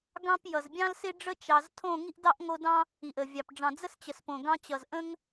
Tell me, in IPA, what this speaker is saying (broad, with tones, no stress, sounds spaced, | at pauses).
ɡ ɑ̃˦ p j ʌ˨ z bʲ ɑ̃˦ l s ɪ˦ ɖ͡ʐ ə˦ t͡ʃ ɑ˧ z tʰ õ˦˨ ŋ i˦ ʔ d ɑ˦ ʔ ŋ o˧ d ɑ̃˦ | i˨ ʔ ə˨ vʲ ɑ˨ p ɖ͡ʐ ɑ̃˨ d͡z ə˦ s t͡ɕ ə˨ s p õ˨ ɡ ɑ̃˧ t͡ɕ ʌ˨ z ʔ ə̃˦ ŋ